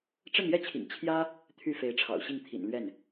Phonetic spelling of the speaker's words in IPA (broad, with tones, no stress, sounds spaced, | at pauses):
ʈ͡ʂ ə˥˧ n j ɛ˥˩ t͡ɕʰ ḭ˨˩ ŋ t͡ɕʰ j ä˥ | t̪ʰ y˥˩ f e˧˥ ɪ̯ ʈ͡ʂʰ ɑ̰˨˩ ʊ̯ ɕ i˥˩ ŋ t̪ʰ ḭ˨˩ n l ɥ ɛ˥˩ n